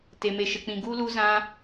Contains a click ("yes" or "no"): no